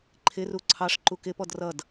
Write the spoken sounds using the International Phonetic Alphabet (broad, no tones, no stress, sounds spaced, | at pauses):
ǃʰ ɪ r u ǀʰ ɑ ʂ ǃ u k ɪ p ɔ d r ʌ d